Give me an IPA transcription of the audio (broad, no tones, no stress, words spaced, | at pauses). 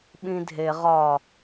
ɓĩdʱe ʁɒ